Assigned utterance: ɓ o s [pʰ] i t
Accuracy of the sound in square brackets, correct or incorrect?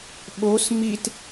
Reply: incorrect: m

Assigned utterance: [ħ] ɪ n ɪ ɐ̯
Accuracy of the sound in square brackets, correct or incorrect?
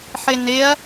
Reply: correct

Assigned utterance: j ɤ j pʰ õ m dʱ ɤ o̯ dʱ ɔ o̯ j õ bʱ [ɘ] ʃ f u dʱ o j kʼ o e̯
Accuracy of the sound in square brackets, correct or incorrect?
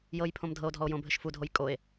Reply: correct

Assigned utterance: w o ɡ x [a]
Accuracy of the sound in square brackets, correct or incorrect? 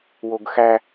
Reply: incorrect: æ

